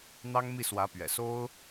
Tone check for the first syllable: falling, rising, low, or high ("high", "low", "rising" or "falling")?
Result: high